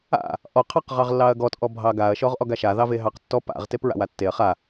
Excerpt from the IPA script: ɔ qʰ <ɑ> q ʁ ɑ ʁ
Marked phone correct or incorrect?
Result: correct